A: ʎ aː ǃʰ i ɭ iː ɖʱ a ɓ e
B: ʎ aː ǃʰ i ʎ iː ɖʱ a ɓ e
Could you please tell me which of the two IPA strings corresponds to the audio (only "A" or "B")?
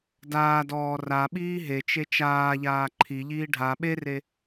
B